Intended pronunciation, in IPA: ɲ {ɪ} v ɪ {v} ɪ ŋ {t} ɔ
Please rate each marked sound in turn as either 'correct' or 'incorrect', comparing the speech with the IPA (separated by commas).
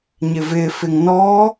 correct, incorrect, incorrect